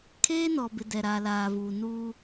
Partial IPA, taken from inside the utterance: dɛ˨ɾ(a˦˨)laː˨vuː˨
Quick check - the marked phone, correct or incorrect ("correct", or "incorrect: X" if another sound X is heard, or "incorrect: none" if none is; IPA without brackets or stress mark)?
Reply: incorrect: a˨